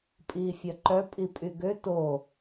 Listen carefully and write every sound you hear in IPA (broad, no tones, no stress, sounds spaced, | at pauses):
pʼ iː fʲ œ ǃ œ pʼ i pʼ y ɡ ø t o